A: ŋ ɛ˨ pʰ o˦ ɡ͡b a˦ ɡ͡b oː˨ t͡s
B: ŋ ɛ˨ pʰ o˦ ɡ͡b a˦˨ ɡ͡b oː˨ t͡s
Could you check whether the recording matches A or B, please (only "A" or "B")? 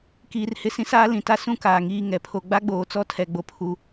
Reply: A